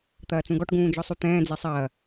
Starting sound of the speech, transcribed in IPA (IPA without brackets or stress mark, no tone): t̪